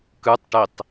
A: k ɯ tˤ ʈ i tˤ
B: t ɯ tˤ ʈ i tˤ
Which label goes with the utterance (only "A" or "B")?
A